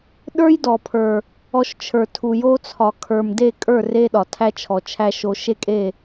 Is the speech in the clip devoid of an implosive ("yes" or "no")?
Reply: no